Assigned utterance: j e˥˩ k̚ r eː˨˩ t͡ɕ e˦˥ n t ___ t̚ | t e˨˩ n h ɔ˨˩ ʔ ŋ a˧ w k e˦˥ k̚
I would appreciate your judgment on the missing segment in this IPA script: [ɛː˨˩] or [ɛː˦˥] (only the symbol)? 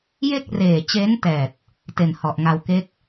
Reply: ɛː˨˩